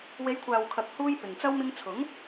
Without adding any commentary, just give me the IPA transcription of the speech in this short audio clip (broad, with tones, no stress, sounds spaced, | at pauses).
w e˨˧ j kʷʰ aː˨ w kʰ ɐ˨ k̚ h uː˧ j p ɪ˨ ŋ t͡s ɐ˥ w m ɪ˧ ŋ t͡sʰ ʊ˨˥ ŋ